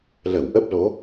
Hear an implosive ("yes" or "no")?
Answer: no